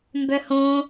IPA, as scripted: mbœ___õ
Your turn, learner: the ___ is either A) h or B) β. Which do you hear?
A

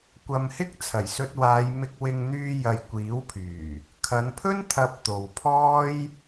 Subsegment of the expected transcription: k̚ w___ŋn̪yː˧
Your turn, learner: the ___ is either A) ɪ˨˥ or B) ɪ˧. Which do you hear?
B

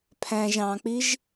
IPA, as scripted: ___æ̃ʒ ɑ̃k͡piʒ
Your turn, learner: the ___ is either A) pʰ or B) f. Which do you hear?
A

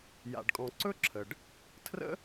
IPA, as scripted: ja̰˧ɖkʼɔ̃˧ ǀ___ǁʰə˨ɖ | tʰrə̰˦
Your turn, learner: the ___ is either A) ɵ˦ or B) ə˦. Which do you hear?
A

